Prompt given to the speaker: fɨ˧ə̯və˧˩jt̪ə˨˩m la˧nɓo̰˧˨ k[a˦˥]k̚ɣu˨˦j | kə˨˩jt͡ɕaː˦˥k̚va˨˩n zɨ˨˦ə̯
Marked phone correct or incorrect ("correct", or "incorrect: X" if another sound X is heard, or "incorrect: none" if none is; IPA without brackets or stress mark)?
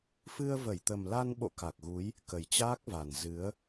incorrect: a˨˩